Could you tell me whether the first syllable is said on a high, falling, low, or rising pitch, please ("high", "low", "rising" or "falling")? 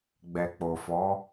low